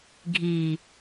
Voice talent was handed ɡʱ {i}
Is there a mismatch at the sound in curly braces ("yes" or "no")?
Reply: no